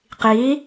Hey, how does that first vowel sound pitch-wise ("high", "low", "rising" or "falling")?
rising